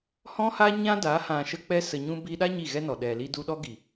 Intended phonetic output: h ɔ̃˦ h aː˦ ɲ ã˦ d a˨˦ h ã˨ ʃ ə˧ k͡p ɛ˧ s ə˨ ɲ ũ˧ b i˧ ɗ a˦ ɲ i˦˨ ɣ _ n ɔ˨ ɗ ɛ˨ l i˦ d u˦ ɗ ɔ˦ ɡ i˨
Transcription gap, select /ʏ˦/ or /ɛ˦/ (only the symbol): ɛ˦